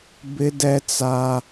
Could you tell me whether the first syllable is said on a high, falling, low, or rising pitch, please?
high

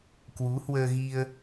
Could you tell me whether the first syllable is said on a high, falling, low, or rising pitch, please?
rising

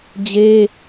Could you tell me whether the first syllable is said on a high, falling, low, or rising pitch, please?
high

